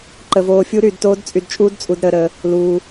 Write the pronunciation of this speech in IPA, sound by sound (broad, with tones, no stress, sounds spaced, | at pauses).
ǃ ə˧ v oː˧ fʲ u˦˥ ɾ yː˧ d t oː˦˥ d t͡sʼ y˧ d t͡ʃʼ uː˦˥ d t͡sʼ u˧ d ɾ əː˧ ɾ əː˧ | l uː˧